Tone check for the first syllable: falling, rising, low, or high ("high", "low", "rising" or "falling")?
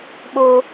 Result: high